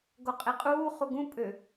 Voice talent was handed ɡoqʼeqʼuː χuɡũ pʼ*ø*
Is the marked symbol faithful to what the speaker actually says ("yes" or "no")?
yes